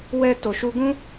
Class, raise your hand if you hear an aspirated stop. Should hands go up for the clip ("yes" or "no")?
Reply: no